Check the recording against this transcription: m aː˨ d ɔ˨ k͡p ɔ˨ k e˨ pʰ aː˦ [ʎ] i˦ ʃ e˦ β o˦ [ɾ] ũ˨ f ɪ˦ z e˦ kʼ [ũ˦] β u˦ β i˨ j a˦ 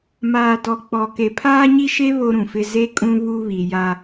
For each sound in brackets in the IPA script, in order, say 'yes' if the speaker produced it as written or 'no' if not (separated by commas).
no, yes, yes